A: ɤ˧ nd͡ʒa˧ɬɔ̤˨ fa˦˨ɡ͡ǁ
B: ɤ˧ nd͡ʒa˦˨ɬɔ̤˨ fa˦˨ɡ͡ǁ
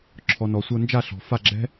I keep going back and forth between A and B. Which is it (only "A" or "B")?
B